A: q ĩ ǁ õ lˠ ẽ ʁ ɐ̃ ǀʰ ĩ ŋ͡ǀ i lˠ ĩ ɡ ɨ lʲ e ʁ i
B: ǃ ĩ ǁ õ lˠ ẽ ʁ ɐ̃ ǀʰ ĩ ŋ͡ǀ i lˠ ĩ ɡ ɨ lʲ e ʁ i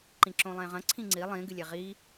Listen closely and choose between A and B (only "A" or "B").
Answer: B